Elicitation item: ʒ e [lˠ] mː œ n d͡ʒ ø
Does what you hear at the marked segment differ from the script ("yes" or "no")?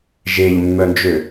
yes